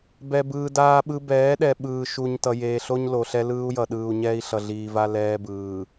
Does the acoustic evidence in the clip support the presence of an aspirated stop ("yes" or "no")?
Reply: no